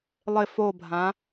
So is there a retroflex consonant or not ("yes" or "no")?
no